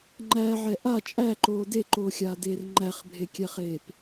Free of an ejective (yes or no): no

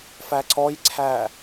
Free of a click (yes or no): no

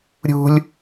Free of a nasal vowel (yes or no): yes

